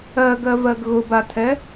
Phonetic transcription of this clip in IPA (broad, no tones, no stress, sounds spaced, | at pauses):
ɜ ɡ ɜ v ɜ ɡ ɣ ʊ b a tʰ ɛ